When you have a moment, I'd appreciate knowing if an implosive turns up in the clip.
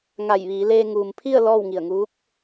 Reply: no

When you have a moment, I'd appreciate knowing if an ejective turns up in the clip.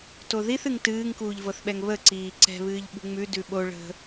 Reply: no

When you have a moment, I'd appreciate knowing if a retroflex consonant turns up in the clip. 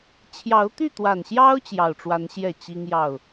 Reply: yes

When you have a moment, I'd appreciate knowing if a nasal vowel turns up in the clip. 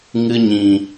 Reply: yes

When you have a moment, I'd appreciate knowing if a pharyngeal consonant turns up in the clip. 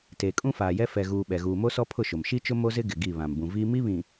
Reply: no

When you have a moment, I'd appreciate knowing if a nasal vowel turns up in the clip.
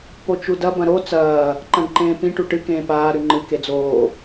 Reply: yes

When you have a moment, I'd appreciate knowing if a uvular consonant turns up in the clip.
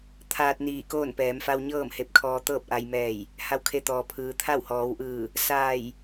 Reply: no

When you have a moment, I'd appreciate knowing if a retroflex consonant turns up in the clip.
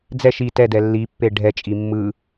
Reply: yes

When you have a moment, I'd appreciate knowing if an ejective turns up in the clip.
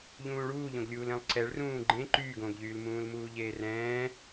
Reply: no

